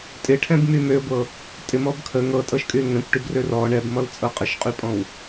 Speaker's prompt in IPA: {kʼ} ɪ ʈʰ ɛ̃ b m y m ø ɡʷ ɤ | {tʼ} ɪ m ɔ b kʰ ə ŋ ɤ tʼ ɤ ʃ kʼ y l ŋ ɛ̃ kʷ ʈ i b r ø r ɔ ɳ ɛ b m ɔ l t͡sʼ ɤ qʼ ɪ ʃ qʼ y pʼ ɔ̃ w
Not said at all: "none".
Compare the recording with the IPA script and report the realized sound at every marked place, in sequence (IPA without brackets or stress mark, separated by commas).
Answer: tʼ, tʼ